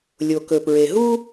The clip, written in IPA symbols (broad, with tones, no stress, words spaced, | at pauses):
lʲo˩kɵ˩pɹe˩ɦu˥